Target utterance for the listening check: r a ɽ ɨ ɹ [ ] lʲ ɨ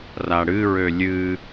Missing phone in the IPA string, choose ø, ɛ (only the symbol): ø